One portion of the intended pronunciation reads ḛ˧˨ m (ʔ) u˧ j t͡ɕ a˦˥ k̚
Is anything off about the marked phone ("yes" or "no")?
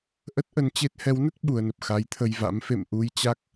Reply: no